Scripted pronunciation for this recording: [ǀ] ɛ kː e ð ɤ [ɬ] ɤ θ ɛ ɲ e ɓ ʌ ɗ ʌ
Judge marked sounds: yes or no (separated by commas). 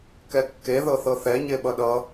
no, no